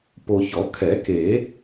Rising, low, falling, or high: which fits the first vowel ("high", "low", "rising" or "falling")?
low